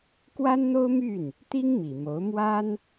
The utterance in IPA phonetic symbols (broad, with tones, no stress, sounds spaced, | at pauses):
k w a˥ n n̪ o˥ ʊ̯ m y˥˩ n | t̪ i˥ ŋ m i˨˩ m o˧˥ ʊ̯ m w a˥ n